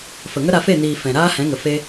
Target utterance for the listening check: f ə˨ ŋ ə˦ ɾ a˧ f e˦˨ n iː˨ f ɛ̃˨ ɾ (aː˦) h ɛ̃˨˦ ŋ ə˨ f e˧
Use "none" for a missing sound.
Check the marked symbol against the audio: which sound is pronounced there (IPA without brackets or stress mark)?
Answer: aː˦